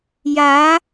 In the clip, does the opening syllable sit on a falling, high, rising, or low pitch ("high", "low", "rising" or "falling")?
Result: rising